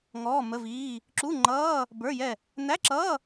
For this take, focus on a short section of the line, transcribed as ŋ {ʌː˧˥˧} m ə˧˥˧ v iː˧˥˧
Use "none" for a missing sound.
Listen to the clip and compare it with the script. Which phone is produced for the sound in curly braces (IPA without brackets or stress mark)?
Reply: ɔː˧˥˧